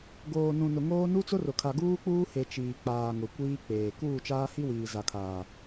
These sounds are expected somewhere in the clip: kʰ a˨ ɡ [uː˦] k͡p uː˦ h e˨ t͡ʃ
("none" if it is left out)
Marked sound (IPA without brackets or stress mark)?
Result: uː˦